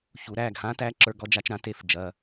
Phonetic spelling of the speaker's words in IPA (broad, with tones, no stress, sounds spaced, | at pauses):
ç u˩˧ ɾ æ˩˧˩ ɡ h ã˦˥ t æ˦˥ ǁ ə˞˦˥ ɡ ɔ˦˥ d͡ʒ a˦˥ t͡ʃ ɾ ã˦˥ t e˦˥ f d͡ʒ ɐ˩˧˩